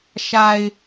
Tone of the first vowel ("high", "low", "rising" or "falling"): low